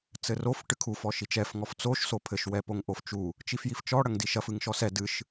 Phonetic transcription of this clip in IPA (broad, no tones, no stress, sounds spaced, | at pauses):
t͡s ɘ r o f ʈ ɨ kʰ u f ɔ ʃ i t͡ʃ ɛ f ŋ ɔ f t͡s o ʃ s o pʰ ɘ ʃ w ɛ p o ŋ ʔ o f t͡ʃ u | t͡ʃ i f j i f t͡ʃ ɔ ɽ ɐ ŋ d i ʃ ɐ f ɨ ŋ ʃ ɔ s ɛ d ɨ ʃ